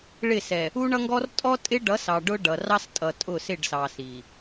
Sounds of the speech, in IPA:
ɭɪ˦˨sɛ˨ | u˦ɳʌ˦ŋɡɔ˦r tʼɔ˦tʼɪ˦ɖʌ˨˦ sɑ˨ɖʊ˦ ɖʌ˨rɑ˦stʼʌ˨ tʼʊ˦˨sɪ˦˨ɖsɑ˨ si˨

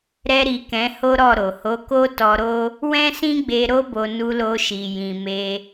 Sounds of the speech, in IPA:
ɾɛ˧ɾi˨ kɛ̃˨˦ho˦ɾɔ˦˨ɾo˨ ho˨˦ko˦tɔ˧ɾo˦ | wɛ̃˦sĩ˦ɡ͡be˧ ɾo˦ bo˧ nu˧lo˧ʃi˨ jĩ˨me˧

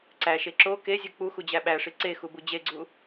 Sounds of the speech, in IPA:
ǀæʃe ǁo kezʲu k͡puxud͡ʑæ ɓæʂi ǀexubu d͡ʑeɡ͡ǀu

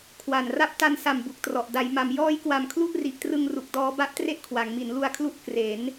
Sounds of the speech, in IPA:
kʰwa˨˩nra˥˩p̚ ta˧nsa˨˩m bu˨˩k̚trɔ˨˩ʔ da˩˦jma˩˦m jɔː˦˥jkwa˨˩m kʰlu˥˩ʔri˨˩ʔtrɯ˧ŋ ru˨˩k̚dɔː˦˥ ba˦˥ʔtre˦˥ʔ kʰwa˩˦ŋmi˩˦nlu˧a̯kʰlu˦˥ʔ kre˩˦n

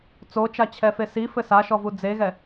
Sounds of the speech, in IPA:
t͡sot͡ʃat͡ɕʰɛfe sifɘ saʃɔvu d͡zeɣɛ

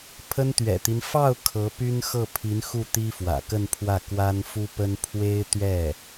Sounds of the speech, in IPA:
pʰə˥nt̪ɥɛ̰˨˩t̪i˦n fɑ˥˩ʊ̯ kʰɤ˧˥py˥n xɤ˥˩pʰi˧˥nxu˥˩ t̪i˥fwä̰˨˩kə˥˧npʰwä˥˩ kwa˥nfu˥ pə˥n pʰwe˥ɪ̯t̪ɥɛ˥˩

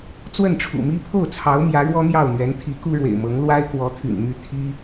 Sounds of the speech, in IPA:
t͡swə˥˩nʈ͡ʂʰṵ˨˩mi˥ pʰo˥˩ʊ̯t͡sʰɑ˧˥ʊ̯ mjä˧˥ɻwɔ˥n̪jɑ˥˩ʊ̯n̪ɥɛ˧˥n t̪ʰi˧˥ ku˥ɻwḛ˨˩ɪ̯mɤ˧˥ŋ lwa˥ɪ̯kwɔ˧˥t̪ʰy̰˨˩n my˥˩ t̪ʰi˥

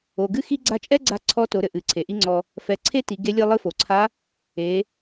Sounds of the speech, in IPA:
o˩ ɡɨ˥xi˥ ɡ͡ǀa˧t͡ʃʼɛ˥ɡ͡ǀa˧ ǀʰɔ˧˥to˩˧ɾɘ˩ ʔɨ˩˧ǀʰe˩ʔi˥ŋ͡ǀɔ˧ | fɛ˩˧ ǀʰe˥ ti˩˧ɡe˧˥ lʲɨ˧lˠɨ˧˥fo˩ǀʰa˧˥ | e˩˧

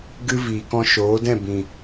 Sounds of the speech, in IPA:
ɡɨ˦ viː˨kɔ̃˧ʃoː˨˦dɛ̃˦˨ bĩ˨

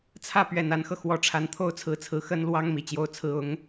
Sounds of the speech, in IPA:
t͡sʰä˥˩pɥɛ˨˩n a˧˥nxɤ˧xwɔ˧˥ ʈ͡ʂʰa˧˥nt̪ʰo˥ʊ̯t͡sʰɹ̩˧˥t͡sʰɹ̩˧˥ xə˥nlwɑ˥ŋ mi˨˩t͡ɕjo˥ʊ̯t͡sʰɹ̩˥ ʊ˧˥ŋ

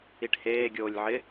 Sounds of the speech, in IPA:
iʈheː ɡʲoːlʲʕɪ

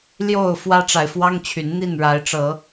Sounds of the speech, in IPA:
ljo˥˨ʊ̯ fwä˦ʈ͡ʂa˨ɪ̯fwɑ˦ŋt͡ɕʰy˨˦n n̪i˥˨nɻa˨˦ɪ̯ʈ͡ʂɤ˨˦

